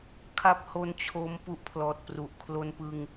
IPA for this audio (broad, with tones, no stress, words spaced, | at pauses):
kʰa˨˩p̚ ho˧n t͡ɕʰo˦˥m pu˦˥ʔpʰlɔː˨˩t̚pru˨˩ʔ kʰlo˧npɯ˧ŋ